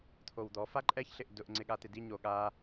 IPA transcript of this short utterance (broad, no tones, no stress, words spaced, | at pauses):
t̪ʰowd̪ɔ faǃʼɛç ɬɪʔdʊʔ ŋ͡ǀɪɠat̪ɪdi ɲoɠa